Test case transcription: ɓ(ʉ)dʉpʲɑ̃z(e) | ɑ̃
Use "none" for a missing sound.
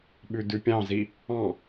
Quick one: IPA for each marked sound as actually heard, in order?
ʉ, i

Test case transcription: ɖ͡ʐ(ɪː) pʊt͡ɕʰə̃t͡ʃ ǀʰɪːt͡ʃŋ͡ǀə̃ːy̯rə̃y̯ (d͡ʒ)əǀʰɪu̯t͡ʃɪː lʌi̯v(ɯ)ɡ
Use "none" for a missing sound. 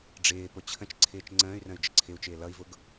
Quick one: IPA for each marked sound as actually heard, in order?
ɪː, d͡ʒ, ʊ

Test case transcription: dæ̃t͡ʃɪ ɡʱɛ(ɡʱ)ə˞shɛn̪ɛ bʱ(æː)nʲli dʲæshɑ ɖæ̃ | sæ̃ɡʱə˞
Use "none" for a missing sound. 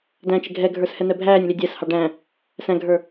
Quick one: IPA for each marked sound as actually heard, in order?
ɡʱ, æː

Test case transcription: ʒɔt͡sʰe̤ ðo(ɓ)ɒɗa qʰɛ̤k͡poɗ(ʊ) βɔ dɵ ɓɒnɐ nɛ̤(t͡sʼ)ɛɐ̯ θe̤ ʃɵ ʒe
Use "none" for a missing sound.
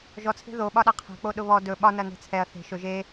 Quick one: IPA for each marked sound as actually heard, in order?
ɓ, ʊ, t͡sʰ

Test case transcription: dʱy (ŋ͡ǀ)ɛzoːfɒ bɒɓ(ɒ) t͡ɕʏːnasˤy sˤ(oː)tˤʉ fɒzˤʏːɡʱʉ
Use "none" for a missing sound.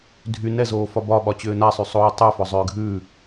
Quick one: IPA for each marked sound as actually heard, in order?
n, ɒ, oː

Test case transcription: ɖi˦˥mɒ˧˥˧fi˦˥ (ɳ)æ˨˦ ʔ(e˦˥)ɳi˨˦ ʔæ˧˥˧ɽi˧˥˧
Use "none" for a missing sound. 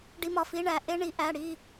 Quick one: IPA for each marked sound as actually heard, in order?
ɳ, e˦˥

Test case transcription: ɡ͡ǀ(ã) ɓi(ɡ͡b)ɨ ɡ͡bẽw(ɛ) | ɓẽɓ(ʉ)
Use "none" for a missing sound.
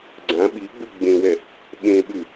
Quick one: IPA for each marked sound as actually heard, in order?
ã, ɡ͡b, ɛ, ʉ

